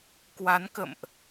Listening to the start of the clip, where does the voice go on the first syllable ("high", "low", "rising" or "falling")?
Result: rising